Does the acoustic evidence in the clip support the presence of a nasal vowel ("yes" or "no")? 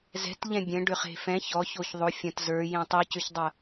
yes